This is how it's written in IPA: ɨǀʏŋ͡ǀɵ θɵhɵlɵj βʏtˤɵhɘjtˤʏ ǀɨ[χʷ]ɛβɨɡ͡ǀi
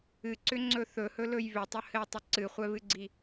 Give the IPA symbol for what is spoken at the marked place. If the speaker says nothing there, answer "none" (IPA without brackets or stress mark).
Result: χʷ